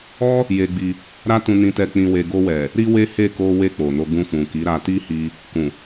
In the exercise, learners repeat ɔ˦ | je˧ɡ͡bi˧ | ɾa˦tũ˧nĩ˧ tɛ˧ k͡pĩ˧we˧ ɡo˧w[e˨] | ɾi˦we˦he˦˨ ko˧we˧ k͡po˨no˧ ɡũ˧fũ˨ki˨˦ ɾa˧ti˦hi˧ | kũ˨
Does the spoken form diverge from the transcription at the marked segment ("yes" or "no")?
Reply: yes